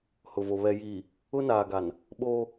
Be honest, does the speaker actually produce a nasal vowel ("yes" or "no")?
no